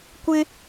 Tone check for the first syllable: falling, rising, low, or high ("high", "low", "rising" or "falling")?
high